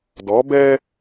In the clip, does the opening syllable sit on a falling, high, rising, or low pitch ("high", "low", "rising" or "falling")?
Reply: rising